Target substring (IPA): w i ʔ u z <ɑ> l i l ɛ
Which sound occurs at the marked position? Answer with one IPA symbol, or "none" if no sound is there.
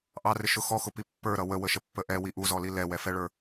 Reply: ɔ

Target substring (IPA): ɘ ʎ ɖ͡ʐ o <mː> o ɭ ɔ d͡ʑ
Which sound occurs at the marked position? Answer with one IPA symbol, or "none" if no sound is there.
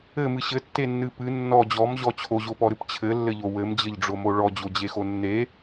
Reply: m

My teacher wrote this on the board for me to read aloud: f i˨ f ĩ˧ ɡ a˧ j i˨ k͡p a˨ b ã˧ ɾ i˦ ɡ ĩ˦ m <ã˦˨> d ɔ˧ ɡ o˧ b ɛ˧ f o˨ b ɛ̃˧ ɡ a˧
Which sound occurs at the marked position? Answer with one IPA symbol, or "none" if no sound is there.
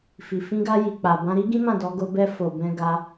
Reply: ã˦˨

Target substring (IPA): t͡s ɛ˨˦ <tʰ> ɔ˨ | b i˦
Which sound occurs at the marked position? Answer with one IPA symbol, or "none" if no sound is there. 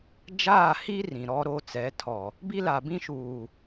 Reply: tʰ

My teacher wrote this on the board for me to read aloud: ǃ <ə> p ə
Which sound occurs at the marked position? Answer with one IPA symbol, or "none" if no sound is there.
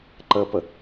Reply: ə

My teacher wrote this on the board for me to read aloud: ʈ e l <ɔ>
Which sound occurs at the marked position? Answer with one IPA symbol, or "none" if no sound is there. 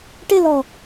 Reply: ɔ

